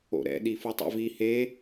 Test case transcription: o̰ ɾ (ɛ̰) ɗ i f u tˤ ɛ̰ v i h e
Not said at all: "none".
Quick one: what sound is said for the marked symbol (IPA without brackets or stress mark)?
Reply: ɛ̰